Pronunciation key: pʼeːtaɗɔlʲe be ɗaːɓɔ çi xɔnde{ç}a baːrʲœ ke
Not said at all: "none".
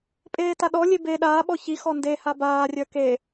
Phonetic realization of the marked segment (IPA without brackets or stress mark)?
h